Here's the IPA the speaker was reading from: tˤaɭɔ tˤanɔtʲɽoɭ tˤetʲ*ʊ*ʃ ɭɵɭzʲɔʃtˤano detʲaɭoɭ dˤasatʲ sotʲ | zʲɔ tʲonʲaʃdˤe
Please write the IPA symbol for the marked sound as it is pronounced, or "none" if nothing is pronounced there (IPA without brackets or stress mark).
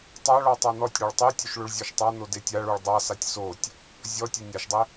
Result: ɵ